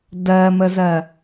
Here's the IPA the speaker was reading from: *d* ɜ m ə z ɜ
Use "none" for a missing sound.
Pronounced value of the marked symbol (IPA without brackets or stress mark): d